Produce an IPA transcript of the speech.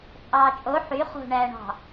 t͡sʼ ɑː t͡ʃʼ o ħ y χ o̤ ɳ æː ɳ ɑ̤

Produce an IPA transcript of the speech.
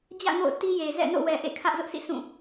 d͡ʑ ä̰˦˨ ŋ o̰˦˨ ʊ̯ t i˦ j e˨ z ɛ̰˦˨ n o̰˦˨ w ɛ˨ ʔ ḛ˦˨ kʰ ä˦ ʔ z ʊ˦ ʔ sʰ ḭ˦˨ sʰ ũ˦˨

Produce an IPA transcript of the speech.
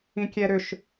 ĩ kʲ ɛ ɾ ʏ ʃ

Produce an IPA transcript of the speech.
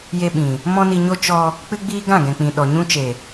j e˧ ɓ ĩ˨ | m ɔ̃˦ n i˧ ɲ o˦ t͡ʃ ɔ˧ | k͡p ɨ˦ ɡ͡b iː˦ ɡ ã˦˨ ɡ ɛ̃˨ k͡p ĩ˨ ɗ ɔ˨ ɲ ũ˧ t͡ʃ e˨

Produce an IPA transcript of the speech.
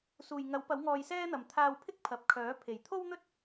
s uː˨˩ j ŋ ɐ˨˥ w p ɐ˨˥ w ŋ ɔː˧ j s ɛː˥ n̪ ɐ˨ m t̪ʰ aː˧ w pʰ ɪ˥ k̚ pʰ ɐ˨ p̚ kʰ œː˨˥ pʰ e˨˩ j t̪ʰ o˥ w n̪ ɵ˥ t̚

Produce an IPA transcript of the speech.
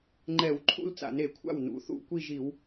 ŋ͡ǃ ɛ˧˩˧ w ǃʰ ṵ˥˧ l t͡s a̰˧˩˧ n e˧˩˧ kʷʰ a̰˥˩ w n ṵ˩˥ θ ṵ˥˧ kʷ i˥˧ ʒ i˧˩˧ w

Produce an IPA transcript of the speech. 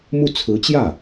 m u˥˩ t͡sʰ ɹ̩˧˥ t͡ɕ j ä˥˩

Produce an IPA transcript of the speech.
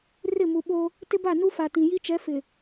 r ɪ˦˨ m u˨ ɓ o˦ | t ɪ˦ b a˦˨ n u˦ f a˨ t ĩ˨ j i˦ t͡ʃ ɛ˨˦ f ɪ˨

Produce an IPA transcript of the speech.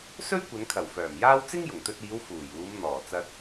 s ɵ˥ ɥ kʷ ɐ˨˧ n kʰ ɐ˨˩ w f œː˨˩ m j aː˥ w t͡s ɪ˥ ŋ j ʊ˨˩ ŋ t̪ ɵ˧ t̚ iː˨˧ w f uː˨˩ j uː˨˧ m n̪ ɔː˨˩ t͡s ɐ˧ t̚

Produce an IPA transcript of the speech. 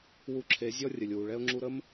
w u˧ ǁʰ e˨˦ zʲ ɔ˦ rʲ ə˨ lʲ w u˨ ɭ ɛ˦ ʊ̯ ŋ͡ǁ u˧ ɾ ə˦ m

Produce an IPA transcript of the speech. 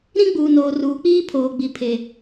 ɾ ĩ˦ ɡ͡b uː˨ n oː˨ r uː˨ k͡p iː˦ pʰ oː˨ ɡ͡b i˨ pʰ e˨

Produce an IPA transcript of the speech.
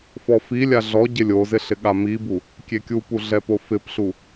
f ɔ f i lʲ a ɮ ɔ ɟ ɪ lʲ o z ɪ ɬ ɪ ɠ a m i b u | kʲ e kʲ u p u ɮ ɛ p o f ɪ p ɬ u

